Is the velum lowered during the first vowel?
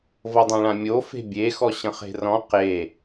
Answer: no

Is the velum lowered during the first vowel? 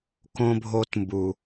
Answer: yes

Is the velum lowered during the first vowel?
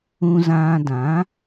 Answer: yes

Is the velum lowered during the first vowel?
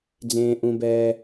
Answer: yes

